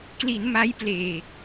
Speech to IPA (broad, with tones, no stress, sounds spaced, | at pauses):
k l i˩˦ n m a˦˥ j p l eː˨˩ k̚